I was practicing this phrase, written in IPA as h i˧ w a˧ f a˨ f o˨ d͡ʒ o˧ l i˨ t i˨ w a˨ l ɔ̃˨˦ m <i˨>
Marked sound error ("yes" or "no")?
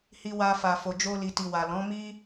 yes